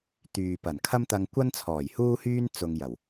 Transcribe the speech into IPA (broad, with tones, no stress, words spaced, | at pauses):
t̪yː˨pɐ˨˩n kʰɐ˥mt̪ɐ˧ŋkʷɐ˥nt͡sʰɔː˨˩j huː˥hyː˥n t͡sʊ˧ŋjɐ˨˩w